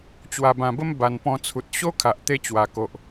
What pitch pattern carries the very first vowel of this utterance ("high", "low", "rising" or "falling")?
low